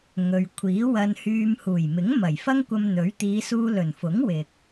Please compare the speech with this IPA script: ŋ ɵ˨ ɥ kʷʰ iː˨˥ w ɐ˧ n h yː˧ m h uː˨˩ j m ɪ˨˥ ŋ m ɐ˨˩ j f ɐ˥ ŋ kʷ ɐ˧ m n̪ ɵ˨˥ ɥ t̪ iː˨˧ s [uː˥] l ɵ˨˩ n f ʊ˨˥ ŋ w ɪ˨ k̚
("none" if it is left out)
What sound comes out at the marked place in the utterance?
uː˧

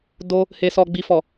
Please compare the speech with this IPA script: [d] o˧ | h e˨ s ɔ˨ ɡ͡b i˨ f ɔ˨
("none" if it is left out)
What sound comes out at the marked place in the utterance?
d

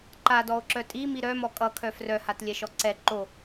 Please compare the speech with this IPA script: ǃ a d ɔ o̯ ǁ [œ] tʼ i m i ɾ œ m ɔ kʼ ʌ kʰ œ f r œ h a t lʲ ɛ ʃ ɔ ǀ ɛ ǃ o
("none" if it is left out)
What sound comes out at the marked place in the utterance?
œ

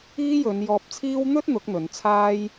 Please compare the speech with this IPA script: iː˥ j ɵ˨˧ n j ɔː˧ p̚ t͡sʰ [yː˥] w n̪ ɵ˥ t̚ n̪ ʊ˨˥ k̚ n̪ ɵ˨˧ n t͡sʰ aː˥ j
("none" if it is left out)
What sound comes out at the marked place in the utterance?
iː˥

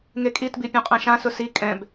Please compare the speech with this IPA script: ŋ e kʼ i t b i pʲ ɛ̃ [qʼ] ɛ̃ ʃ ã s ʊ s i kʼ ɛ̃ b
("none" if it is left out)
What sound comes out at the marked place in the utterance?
qʼ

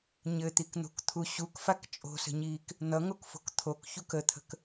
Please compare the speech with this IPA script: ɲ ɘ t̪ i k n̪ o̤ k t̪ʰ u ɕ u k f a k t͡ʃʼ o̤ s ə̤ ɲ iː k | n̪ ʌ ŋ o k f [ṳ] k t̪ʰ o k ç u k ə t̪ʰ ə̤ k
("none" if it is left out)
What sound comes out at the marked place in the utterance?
o̤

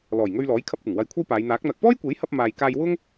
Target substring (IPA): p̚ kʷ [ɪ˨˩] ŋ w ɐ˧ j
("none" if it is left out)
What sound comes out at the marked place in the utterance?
ɪ˨˩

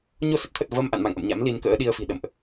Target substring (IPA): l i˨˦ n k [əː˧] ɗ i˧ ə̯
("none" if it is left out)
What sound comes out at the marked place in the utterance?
ə̰ː˧˥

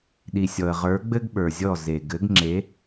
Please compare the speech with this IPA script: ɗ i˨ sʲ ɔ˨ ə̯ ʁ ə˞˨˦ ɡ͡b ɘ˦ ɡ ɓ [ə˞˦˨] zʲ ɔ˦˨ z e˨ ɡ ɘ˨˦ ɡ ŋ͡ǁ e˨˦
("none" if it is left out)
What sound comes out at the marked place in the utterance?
ə˞˨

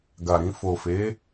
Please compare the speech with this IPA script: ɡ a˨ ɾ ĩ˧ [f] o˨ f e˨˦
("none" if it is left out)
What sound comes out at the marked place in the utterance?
f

